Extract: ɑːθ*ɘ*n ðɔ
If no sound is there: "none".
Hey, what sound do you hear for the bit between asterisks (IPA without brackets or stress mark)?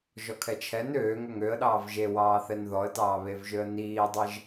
ɛ